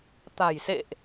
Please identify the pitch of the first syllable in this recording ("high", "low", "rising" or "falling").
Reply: low